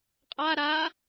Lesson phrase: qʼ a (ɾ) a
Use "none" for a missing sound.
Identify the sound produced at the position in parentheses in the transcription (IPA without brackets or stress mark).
ɾ